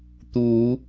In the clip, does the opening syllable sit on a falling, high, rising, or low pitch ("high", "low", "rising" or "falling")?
rising